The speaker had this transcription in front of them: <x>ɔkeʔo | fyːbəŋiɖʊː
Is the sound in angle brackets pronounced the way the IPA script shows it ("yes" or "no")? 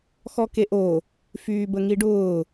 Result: yes